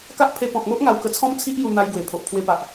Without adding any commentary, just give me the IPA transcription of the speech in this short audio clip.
ka˦ʔpʰe˧ pɔ̃˨k̚mo˦ʔ ŋa˧wkə˧t͡sʰɔ̃˦mt͡sʰi˦ʔ ju˧n̪a˧j ɡwe˨˩pʰo˨ʔ pʰwe˧pa˨ʔ

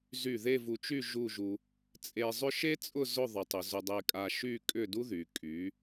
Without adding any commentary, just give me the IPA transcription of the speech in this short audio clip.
zy˧˩ ðe˥˧vu˧t͡ʃy˥˧ ʒu˥˧ʒu˧ | t͡sʼe˧zˤʏ˥ ʃe˥t͡sʼʊ˥˧ zʊ˥˧ðˤʊ˩˧tˤʏ˩˧ zʊ˧dˤe˧ kʼa˧ʃy˥˧ kʼʏ˥˧du˥ðy˩˧ kʼy˩˧

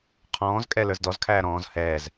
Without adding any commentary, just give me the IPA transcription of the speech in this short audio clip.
qʰɔ̃ːzkʼɛ lə˞zdɔzkʰæː ɾɔ̃ːz hɛːz

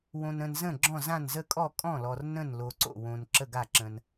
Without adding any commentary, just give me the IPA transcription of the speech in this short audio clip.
wõ˨nə̃˨nzə̃˥˩ ɡ͡ǁɔ̃˥˩zã˥˩n zə˥˩kʼɔ˥˩ kʼɔ̃˥˩lɔ˨r nə̃˥˩nlo˨ǀo̰˥˩wõ˨n ǁə˥˩ɡa˥˩ǁə̃˨n

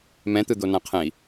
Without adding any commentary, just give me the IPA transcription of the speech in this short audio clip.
mɛ̃t̪ɯd̪o nãqʰɛ̃i̯

